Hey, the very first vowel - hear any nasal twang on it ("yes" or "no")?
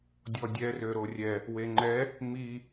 no